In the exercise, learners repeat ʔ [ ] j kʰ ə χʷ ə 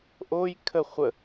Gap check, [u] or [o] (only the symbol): o